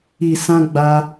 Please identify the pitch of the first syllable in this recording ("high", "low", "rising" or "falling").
low